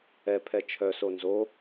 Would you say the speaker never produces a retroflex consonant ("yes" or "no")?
yes